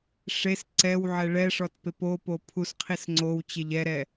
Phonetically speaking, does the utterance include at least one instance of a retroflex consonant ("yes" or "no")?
yes